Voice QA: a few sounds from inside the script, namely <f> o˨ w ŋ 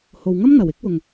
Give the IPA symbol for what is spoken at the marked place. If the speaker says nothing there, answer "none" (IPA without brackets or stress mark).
h